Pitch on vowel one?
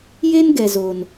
high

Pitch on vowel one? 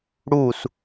falling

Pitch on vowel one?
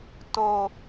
high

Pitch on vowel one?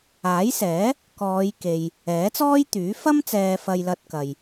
rising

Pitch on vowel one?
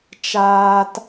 low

